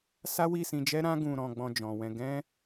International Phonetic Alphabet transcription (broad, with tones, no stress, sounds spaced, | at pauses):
s a˦ w i˦˨ s ĩ˧ d͡ʒ ɛ˦ ɾ ã˦ ɡ ũ˧ ɾ ɔ̃˧ ɡ͡b ɔ̃˧ d͡ʒ ɔ̃˨ w ɛ̃˧ ɡ ɛ̃˦